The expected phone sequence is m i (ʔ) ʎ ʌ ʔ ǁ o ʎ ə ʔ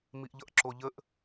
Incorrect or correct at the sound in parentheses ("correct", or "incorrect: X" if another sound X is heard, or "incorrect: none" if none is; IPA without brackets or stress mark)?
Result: correct